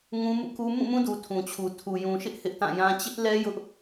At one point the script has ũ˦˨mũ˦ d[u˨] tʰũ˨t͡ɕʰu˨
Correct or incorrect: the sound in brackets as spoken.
correct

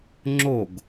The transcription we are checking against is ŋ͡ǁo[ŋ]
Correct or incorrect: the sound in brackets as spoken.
incorrect: ɡ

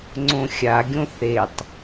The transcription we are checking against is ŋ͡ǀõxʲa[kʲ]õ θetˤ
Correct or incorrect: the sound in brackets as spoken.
incorrect: ɡʲ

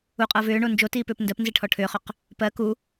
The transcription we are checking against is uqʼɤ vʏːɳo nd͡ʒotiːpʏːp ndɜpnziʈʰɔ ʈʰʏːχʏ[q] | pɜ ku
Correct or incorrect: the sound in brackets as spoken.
correct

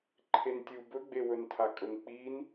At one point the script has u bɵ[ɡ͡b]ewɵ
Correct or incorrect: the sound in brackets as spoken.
correct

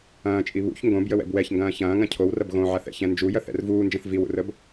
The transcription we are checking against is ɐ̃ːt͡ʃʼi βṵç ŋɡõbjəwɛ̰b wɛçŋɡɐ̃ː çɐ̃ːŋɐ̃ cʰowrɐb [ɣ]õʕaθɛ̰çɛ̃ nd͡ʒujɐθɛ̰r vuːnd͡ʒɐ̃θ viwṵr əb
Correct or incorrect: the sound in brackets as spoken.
correct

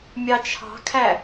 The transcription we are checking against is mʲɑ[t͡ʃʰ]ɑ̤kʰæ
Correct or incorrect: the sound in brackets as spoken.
correct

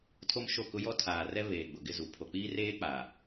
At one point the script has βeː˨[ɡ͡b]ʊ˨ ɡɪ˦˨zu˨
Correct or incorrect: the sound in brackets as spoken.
correct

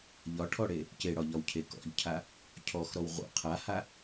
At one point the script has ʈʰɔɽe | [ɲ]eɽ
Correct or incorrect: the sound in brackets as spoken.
incorrect: c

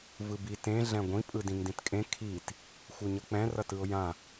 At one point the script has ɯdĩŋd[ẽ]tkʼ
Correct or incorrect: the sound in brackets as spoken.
incorrect: ĩ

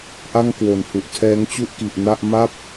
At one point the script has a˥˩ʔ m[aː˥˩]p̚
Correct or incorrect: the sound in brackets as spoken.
incorrect: a˥˩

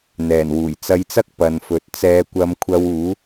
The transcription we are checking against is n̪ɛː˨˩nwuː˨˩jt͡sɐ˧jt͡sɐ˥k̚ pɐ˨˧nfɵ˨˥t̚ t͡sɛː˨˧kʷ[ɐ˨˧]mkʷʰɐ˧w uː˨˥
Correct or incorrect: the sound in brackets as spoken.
correct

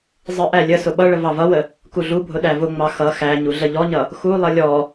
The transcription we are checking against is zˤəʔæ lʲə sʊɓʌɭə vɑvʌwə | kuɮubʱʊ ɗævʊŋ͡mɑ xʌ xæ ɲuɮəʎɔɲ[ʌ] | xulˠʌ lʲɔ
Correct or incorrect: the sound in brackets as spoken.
correct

